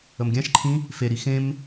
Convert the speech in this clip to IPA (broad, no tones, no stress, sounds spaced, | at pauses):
ə m ɡʲ ã ʃ ǃʰ ĩ | f e ɾ i x ẽ m